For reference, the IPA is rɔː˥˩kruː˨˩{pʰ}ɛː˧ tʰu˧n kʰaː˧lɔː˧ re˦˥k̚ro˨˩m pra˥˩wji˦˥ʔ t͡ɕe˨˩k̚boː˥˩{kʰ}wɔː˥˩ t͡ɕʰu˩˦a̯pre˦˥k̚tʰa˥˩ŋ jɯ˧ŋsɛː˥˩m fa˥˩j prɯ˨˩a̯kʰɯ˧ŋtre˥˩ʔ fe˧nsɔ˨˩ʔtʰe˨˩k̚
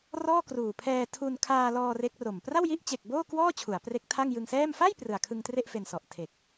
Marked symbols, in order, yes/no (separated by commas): yes, no